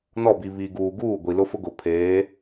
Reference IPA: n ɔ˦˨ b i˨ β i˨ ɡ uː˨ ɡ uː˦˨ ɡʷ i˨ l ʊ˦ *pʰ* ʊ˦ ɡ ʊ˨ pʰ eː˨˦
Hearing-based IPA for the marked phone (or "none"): f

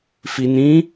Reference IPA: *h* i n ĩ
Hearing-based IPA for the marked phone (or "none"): f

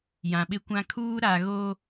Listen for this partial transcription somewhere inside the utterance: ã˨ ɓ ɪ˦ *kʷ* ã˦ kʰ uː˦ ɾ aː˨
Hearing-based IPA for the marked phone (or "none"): kʷ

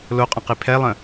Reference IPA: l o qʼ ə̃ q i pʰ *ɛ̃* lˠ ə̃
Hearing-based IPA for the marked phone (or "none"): ɛ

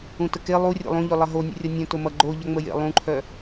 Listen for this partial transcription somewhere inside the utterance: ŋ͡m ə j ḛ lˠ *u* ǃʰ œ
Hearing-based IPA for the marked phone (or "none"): ũ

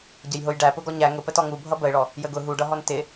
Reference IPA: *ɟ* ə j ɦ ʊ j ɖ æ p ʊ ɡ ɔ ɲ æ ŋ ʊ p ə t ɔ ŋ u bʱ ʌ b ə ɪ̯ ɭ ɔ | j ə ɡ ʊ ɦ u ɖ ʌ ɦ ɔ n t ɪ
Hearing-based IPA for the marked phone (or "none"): ɟ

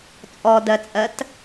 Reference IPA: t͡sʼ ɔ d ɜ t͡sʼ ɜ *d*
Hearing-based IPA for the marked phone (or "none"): t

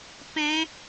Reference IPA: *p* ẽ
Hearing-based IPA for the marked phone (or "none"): p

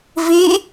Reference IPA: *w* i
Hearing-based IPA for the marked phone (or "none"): v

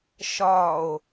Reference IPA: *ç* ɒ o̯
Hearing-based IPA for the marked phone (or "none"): ʃ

